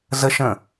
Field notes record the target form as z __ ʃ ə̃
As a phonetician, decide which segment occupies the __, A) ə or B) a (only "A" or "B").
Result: A